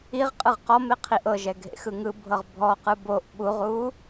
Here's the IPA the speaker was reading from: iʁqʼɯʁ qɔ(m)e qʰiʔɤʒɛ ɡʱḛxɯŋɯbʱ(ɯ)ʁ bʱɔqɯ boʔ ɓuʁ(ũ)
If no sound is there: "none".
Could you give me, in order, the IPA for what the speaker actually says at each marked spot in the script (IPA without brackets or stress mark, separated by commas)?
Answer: m, ɤ, u